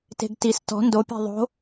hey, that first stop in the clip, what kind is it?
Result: plain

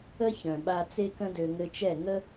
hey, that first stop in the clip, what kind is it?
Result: implosive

